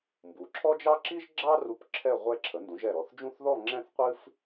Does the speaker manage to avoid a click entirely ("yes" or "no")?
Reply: no